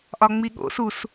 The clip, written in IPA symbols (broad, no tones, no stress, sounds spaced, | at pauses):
ʔ ɒ ŋ͡m i ɠ o̰ s u s